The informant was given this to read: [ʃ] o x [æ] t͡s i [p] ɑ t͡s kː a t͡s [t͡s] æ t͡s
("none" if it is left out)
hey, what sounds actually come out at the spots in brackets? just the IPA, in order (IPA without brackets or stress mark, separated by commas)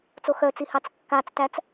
t͡s, œ, h, t